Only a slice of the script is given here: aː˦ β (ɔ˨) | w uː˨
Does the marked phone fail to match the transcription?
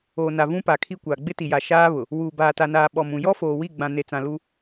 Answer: yes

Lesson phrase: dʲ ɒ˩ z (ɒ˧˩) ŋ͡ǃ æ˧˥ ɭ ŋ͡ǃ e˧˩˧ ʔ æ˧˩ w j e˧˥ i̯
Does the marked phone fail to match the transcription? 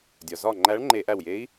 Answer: no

